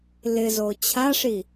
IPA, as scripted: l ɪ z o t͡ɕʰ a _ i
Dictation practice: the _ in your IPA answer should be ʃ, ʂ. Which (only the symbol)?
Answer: ʂ